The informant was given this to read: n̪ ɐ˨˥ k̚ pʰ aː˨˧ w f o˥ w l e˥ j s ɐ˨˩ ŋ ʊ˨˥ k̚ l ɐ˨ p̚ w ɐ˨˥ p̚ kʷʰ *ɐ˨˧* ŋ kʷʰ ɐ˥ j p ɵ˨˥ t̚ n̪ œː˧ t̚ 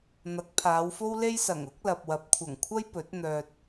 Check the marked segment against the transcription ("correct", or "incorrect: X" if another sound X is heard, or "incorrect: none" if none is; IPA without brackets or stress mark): incorrect: ɐ˨˩